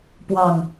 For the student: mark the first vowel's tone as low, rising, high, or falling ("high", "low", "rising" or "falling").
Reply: falling